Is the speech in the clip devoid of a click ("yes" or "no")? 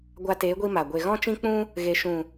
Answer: yes